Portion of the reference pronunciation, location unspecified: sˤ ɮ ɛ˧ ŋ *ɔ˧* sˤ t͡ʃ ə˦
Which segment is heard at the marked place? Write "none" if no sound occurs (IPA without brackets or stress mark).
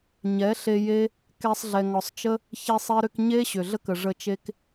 ɔ˧